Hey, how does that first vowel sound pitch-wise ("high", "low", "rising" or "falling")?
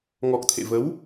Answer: low